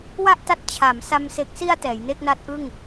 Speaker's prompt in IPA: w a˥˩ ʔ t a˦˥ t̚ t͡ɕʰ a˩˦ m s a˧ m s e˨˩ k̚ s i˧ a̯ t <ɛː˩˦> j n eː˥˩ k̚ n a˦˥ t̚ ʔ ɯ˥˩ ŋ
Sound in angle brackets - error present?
no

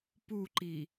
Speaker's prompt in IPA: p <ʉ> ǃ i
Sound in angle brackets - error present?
yes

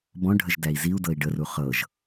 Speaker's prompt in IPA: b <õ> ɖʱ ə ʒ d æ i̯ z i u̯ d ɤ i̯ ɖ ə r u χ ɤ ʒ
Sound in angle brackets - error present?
yes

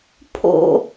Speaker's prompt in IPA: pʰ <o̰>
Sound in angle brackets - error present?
no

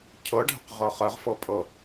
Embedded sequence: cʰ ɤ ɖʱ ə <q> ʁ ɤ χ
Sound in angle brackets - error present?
no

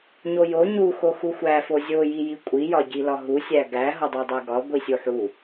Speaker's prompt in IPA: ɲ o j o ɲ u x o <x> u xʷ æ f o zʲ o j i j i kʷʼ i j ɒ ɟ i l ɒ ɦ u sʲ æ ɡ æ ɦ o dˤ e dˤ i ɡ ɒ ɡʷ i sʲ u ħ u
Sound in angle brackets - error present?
no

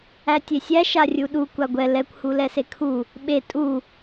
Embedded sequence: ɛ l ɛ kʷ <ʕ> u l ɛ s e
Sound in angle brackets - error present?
yes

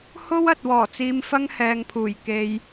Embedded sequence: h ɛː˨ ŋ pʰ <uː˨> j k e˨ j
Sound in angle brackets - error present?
yes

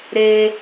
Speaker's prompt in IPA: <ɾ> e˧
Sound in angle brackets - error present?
no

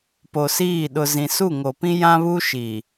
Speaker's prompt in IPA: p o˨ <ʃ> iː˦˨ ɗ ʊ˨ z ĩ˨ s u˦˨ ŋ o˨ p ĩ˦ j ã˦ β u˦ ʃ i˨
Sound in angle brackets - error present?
yes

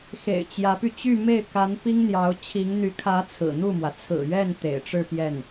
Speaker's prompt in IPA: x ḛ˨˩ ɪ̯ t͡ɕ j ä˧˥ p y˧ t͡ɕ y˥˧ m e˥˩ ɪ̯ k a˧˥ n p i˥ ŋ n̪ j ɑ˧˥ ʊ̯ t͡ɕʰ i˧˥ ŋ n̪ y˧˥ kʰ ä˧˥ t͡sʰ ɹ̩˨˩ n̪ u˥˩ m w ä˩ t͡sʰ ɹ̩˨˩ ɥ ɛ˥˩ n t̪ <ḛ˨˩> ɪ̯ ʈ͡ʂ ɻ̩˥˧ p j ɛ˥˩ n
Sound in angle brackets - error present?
no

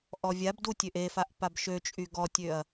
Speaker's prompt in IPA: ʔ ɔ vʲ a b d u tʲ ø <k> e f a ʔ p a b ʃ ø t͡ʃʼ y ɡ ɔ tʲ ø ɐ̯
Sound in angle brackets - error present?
yes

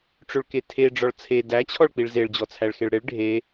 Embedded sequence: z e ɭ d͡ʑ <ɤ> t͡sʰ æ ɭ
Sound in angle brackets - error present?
yes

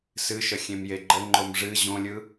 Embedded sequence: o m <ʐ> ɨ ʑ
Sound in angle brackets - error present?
no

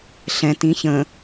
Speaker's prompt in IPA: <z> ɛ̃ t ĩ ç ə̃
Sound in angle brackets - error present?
yes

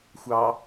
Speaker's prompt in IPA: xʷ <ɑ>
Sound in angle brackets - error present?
no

